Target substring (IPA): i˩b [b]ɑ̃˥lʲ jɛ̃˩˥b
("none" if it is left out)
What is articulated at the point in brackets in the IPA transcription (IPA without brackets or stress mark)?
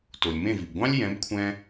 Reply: ɡʷ